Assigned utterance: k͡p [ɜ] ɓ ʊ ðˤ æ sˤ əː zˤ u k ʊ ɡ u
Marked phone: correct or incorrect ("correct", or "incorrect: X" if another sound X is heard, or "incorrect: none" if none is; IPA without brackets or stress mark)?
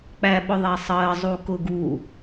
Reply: incorrect: æ